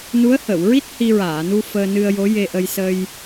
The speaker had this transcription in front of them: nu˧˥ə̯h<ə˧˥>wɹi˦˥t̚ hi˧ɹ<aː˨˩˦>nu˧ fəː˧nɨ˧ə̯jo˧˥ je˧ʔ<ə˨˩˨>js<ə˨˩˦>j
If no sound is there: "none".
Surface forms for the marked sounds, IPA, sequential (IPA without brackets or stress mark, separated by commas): ə˨˩˨, aː˨˩˨, ə˧, ə˧